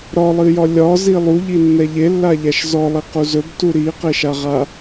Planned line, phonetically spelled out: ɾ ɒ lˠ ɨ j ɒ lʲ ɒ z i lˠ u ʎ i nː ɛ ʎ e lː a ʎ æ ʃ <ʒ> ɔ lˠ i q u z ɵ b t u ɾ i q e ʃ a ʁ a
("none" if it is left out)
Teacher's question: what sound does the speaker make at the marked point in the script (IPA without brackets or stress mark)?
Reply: z